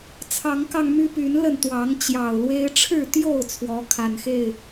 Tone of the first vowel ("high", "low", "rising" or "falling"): rising